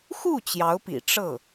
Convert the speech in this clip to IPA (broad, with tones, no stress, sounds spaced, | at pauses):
x u˥˩ t͡ɕ j ɑ˧˥ ʊ̯ p ḭ˨˩ ʈ͡ʂ ɤ˥˩